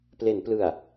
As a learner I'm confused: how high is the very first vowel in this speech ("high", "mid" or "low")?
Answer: mid